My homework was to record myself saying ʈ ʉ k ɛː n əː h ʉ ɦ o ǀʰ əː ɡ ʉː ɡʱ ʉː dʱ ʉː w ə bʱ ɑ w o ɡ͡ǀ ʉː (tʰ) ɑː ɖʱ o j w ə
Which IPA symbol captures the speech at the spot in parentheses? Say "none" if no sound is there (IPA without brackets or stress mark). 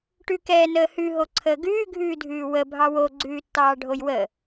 tː